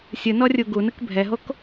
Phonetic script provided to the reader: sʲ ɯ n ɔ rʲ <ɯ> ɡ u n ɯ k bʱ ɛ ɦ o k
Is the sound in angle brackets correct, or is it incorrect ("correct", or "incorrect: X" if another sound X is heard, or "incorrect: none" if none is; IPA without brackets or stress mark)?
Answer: incorrect: u